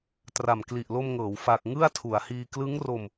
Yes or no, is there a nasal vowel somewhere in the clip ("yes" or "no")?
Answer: no